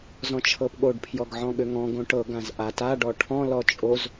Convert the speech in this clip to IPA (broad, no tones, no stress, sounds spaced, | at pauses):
z ɔ̃ t͡ʃʰ ɤ p ɠ o ɖ pʰ j ɔ ɡ ʕ ɔ̃ ɠ ʏ ŋ ɔ̃ ɡ õ ʈ ɤ ɡ ã z ʔ a t a ɖ ɔ ʈʰ ɔ̃ l ɔ t͡ʃʼ o z